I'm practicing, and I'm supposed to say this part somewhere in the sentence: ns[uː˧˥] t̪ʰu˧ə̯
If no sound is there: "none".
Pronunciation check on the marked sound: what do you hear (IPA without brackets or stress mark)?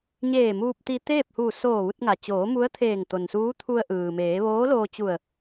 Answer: uː˧˥